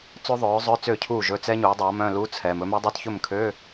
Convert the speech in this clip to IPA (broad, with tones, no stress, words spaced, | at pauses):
t͡sø˦˥ðˤœː˩˥zˤœ˧˥˧ t͡sø˥˩cʰuː˥˩ʒɵ˧˥˧ t͡sɛ˦˥ ɲuː˩˥dˤø˩˥ɐ̯mœ̃˧˥˧lu˧˥˧ t͡sʰɛː˨m ɵ˩˥mɛ˦˥ dˤø˧˥˧tçɵ˥˩mkʰøː˧˥˧